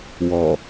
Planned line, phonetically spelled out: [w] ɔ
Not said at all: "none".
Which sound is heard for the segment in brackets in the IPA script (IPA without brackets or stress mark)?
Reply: w